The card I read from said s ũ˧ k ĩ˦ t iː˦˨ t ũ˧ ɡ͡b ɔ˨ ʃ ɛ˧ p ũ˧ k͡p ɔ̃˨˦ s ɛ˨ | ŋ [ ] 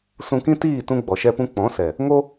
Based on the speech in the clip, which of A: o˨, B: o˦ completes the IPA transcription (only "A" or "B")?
B